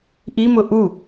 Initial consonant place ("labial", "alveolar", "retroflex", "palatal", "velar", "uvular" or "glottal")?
glottal